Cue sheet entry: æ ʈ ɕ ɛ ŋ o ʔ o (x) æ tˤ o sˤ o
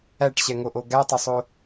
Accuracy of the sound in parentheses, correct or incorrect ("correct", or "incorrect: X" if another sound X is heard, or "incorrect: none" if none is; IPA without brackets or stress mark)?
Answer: incorrect: ɡ